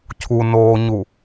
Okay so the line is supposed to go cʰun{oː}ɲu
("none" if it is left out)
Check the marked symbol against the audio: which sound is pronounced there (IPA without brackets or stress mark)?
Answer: oː